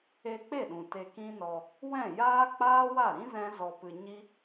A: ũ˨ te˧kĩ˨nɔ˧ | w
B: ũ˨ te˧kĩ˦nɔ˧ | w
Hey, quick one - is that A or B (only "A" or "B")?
B